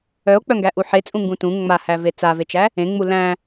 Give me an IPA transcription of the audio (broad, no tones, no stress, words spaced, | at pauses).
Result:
œo̯k͡pœ ŋɡæʔuħet͡sʼũ ŋɡũtũ ŋ͡mahæve t͡savet͡ʃæ | ẽŋ͡mu læ̃